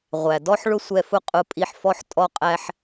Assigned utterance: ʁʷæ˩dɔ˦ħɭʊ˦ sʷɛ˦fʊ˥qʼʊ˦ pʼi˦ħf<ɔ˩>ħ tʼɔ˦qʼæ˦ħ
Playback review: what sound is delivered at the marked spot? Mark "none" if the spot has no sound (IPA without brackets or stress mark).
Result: ɔ˥